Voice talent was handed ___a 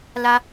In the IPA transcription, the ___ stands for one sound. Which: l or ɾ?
l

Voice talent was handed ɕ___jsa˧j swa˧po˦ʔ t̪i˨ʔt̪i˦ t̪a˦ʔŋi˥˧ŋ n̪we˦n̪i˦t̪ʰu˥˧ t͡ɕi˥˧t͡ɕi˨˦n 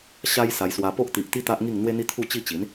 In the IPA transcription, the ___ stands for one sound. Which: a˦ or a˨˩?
a˦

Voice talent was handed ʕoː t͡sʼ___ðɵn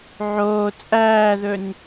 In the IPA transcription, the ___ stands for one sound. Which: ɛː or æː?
æː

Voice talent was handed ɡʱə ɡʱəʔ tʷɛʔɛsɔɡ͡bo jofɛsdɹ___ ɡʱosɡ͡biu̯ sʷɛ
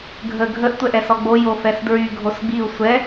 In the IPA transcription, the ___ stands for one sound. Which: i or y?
y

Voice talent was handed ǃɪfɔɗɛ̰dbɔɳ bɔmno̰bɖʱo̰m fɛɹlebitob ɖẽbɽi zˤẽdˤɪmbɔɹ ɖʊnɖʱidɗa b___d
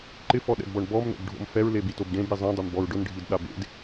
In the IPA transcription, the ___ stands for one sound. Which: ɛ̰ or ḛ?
ḛ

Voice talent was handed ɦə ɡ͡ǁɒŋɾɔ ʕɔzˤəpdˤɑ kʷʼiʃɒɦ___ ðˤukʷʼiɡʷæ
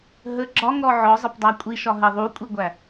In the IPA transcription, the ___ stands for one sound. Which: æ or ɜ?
ɜ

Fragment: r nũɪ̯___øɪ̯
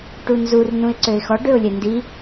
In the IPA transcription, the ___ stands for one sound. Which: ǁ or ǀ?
ǀ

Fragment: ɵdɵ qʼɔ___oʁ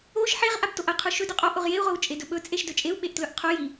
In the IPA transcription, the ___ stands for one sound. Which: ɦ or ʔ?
ʔ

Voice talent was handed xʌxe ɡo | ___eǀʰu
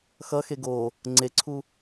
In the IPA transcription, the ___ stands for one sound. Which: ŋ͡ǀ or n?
ŋ͡ǀ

